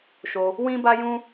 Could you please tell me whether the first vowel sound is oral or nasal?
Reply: oral